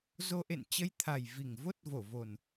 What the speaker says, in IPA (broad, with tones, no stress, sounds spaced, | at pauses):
z o˧ ʔ ḛ˧˨ n t͡ɕ ə˧ j t̪ʰ a˨˩ j v i˧˩ ŋ v o˦˥ t̚ v o˧˩ v o˨˩ n